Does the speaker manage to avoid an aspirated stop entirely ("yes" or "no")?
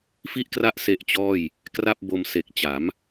yes